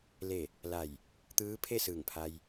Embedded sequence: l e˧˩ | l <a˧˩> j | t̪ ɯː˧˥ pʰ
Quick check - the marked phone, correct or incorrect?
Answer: correct